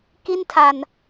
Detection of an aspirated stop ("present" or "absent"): present